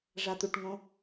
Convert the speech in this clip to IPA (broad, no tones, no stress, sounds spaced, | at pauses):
ʐ a t̪ u ʈ ŋ õ